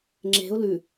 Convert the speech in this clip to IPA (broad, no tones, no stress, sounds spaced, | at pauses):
ŋ͡ǁ e̤ ʊ̯ l ʉ